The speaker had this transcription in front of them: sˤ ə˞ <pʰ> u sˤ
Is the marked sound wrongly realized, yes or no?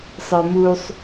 yes